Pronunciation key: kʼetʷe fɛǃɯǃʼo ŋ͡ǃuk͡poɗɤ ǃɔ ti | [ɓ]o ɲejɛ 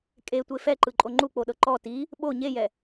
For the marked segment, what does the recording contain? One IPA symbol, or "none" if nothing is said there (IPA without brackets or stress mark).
ɓ